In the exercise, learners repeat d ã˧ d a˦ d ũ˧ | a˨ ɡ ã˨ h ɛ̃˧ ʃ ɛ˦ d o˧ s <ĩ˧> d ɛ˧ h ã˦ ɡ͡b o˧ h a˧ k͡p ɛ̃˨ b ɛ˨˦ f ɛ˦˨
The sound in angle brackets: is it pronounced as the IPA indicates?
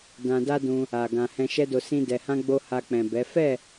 no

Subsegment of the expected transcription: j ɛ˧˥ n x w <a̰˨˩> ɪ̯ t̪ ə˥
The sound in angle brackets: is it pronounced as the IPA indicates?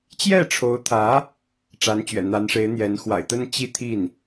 yes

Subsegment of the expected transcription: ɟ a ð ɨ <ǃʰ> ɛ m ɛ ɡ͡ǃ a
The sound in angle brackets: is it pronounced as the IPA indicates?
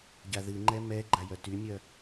no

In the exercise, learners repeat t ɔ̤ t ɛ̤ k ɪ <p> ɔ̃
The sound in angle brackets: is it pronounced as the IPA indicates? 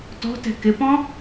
yes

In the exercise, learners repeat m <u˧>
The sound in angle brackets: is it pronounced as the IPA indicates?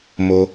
no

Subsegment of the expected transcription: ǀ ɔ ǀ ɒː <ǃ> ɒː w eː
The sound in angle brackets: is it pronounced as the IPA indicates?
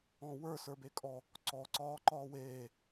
yes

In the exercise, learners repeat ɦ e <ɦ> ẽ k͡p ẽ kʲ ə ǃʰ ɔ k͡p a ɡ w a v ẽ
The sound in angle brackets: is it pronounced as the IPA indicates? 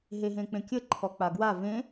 yes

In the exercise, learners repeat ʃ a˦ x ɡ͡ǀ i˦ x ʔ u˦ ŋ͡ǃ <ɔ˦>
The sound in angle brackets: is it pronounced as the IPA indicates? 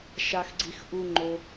no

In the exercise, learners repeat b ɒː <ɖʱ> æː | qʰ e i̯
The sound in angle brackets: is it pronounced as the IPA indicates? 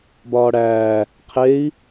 no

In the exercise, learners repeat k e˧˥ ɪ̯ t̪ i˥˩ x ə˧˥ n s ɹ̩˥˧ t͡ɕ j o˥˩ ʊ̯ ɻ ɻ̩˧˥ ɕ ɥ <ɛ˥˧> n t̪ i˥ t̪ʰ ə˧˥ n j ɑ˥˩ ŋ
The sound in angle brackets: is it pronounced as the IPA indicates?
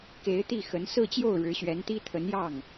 no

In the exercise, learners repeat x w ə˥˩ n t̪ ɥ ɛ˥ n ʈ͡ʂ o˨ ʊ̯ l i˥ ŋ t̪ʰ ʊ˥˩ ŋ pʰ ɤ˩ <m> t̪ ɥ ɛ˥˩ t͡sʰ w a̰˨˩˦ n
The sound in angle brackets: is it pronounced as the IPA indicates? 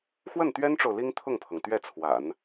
no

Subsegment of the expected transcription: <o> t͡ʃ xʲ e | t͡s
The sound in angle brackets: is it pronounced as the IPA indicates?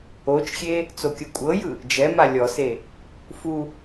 yes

